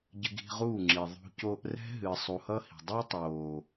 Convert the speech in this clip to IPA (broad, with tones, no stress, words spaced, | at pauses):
ɟɨ˧ɡi̤˧ ʁuː˦˨ŋ͡ǁi˨ ðˤṳ˧ coː˧ʔrɛ̤˦ ɦɨː˨sˤu˨hʌ˦ hi̤˨ dˤɨː˦tˤoː˨